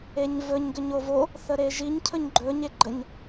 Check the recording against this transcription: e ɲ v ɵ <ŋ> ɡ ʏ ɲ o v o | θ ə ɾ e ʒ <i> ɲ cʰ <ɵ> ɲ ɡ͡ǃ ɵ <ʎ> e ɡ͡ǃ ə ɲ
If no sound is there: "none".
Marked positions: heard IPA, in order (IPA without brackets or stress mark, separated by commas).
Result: ɲ, i, ɵ, ɲ